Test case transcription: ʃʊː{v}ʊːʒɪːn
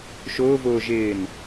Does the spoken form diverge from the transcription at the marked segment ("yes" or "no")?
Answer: no